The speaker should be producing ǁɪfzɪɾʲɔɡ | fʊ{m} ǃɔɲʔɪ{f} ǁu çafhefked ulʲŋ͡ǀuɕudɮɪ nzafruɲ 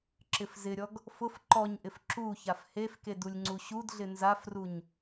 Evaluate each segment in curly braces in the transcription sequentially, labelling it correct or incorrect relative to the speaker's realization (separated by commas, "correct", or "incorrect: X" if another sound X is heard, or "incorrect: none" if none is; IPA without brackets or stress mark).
incorrect: f, correct